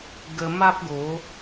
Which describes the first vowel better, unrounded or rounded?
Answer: unrounded